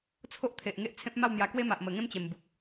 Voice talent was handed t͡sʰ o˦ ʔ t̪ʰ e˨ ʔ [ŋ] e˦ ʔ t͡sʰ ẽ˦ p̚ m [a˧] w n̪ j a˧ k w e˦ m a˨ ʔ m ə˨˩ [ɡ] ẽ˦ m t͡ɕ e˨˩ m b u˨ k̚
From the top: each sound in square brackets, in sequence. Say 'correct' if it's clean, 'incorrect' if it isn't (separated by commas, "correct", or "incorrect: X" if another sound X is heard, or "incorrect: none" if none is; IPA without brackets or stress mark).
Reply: correct, incorrect: a˥˧, incorrect: ŋ